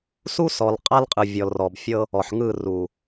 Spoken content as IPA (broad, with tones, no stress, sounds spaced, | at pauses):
s u˦ s ɔ˨ l qʼ a˦ l qʼ ɯ˨ vʲ ɔ˨ l r ɔ˨ b fʲ ɤ˦ | ɔ˨ ħ ŋ ɯ˦˨ r u˨